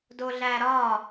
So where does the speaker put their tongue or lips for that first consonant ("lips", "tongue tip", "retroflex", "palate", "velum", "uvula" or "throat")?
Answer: tongue tip